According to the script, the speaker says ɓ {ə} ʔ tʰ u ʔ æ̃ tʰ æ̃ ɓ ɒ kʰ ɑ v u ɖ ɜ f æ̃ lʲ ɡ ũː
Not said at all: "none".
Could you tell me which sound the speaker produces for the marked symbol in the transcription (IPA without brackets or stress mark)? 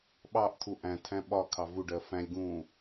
ɑ